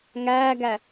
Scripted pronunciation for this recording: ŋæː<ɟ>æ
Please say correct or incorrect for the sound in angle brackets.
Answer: incorrect